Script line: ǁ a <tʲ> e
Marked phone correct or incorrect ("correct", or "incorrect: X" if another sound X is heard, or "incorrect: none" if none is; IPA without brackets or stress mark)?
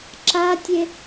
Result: correct